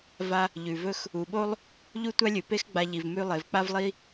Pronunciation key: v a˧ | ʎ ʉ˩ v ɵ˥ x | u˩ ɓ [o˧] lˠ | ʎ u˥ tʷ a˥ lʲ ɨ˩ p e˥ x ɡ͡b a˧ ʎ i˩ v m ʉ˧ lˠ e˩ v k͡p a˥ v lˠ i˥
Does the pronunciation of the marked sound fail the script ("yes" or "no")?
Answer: yes